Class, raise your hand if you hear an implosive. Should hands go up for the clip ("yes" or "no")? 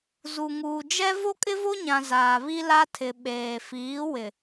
yes